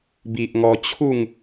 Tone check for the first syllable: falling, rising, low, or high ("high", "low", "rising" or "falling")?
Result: low